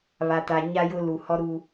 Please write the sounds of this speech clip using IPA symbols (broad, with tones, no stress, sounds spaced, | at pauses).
β a˨ t a˨ ɲ a˦ j ʊ˦ l u˨ h ɔ˦ ɾ u˦